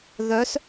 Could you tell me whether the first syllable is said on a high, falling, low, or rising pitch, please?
rising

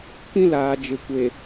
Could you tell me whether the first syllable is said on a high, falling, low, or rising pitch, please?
high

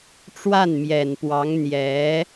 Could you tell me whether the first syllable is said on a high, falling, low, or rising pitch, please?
falling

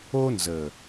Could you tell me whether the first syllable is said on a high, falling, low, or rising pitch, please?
high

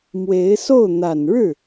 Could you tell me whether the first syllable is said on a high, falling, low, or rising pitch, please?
rising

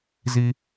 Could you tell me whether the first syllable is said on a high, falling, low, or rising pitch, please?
low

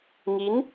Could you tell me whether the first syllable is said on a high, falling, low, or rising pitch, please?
rising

